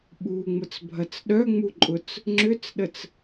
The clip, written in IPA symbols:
ɓ u ŋ͡m ʊ t͡s bʱ ɐ t͡s ɗ œ ŋ͡m u ǃʼ ʊ t͡s | ŋ͡ǁ ʏ t͡s ɗ ə t͡s

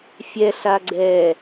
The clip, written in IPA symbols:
fʲ ɛ ɬ a ɡ͡ǀ ɛ

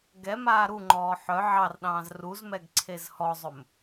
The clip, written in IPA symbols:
ɡ ɛ m aː ɾ u ŋ͡ǃ ɔː ħ œ ʕ ɑ r ɗ ɑ̃ː z r u z m ɛ ɡ ǀʰ e z h ɔ zˤ ɵ m

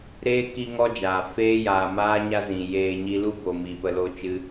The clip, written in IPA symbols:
ɾ eː˦ k i˦ ŋ ɔ˦ d͡ʒ aː˨ f eː˦ j aː˨ m aː˦ ɲ a˦ z ĩ˨ j eː˧ ɲ i˦ l u˦ b o˨ m i˨ p ə˧ l o˦ t͡ʃ ɨ˦

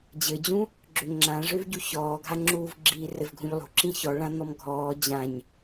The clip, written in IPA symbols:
d͡ʑ ɘ d͡ʑ ũ | ɡ͡ǁ ʏ ŋ͡ǁ ã ʐ ø v ɟ u ç ɔː ɡʱ a ŋ͡ǁ uː v ɡ͡ǁ iː r ɘ v ɡʱ ũ ʎ lˠ ṳ ǁ ĩ ç ɔ ɭ ã n̪ ɔ m ɡʱ ɔː d͡ʑ ã ɲ

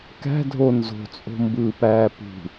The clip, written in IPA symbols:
k æ̤ dʱ o n z o̤ t͡sʼ o̤ m b ɯː p æː p ṳ

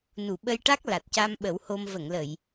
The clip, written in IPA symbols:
n u˨˩˨ ɓ ə˧ j ʈ a˦˥ k̚ l a˨˩ t̚ c a˧ m ɓ ə˨˩˦ w h o˧ m v ə˨˩˨ ŋ l ə˨˩˨ j

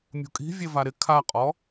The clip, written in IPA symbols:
mʲ ṳ kʼ i̤ vʲ e v a ɾ ɪ kʰ a qʼ ɔ

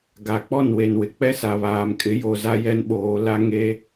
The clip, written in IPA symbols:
ɡ a˨ k͡p ɔ˦˨ n w e˨ n w ɪ˨ k͡p ɛ˦ s a˨ β aː˨ m kʼ ɪ˨˦ j o˨ z a˦ j ɛ˦ n ɓ oː˨˦ l a˦ ŋ e˦

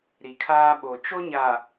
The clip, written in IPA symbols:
ɾ i˨ kʰ aː˦ ɓ o˨ t͡ʃ o˦ ɲ a˨

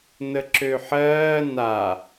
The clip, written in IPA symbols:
n ə ǁ ø ħ ɜː n a

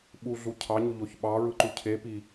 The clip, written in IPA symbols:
ɓ u ɮ u cʰ ɑ ɲ u ʎ o ç ɓ ɑ ɹ ɯ ǃ u cʰ e p i

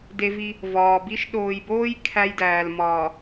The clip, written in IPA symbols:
d e˦ v i˦ | v ɒː˨ b i˦ ʃ ɗ oː˨ j b oː˦ j kʰ æ˦ j d æː˨ l m ɒː˨

